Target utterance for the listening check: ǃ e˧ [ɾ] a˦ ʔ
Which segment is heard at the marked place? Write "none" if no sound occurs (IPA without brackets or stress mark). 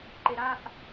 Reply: ɾ